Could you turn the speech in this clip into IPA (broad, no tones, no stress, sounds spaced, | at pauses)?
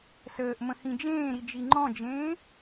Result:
s əː ʔ m ə̃ h ĩ d͡ʒ ẽː ɾ i d͡ʒ i ŋ͡ǃ ɔ̃ d͡ʒ ẽː